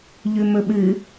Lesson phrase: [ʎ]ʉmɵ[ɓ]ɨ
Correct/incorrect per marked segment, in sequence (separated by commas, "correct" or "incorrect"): correct, correct